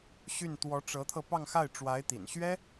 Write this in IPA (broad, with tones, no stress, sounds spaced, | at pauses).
ɕ y˥˩ n t̪ w ɔ˧˥ ʈ͡ʂ ɤ˧˥ t̪ʰ ɤ˧ p ɑ˥˧ ŋ x a˥˩ ɪ̯ ʈ͡ʂ w a˧˥ ɪ̯ t̪ ḭ˨˩ n ɕ ɥ ɛ˥